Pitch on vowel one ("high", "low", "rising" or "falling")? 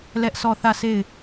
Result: high